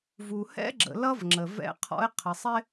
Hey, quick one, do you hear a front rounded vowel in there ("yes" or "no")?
no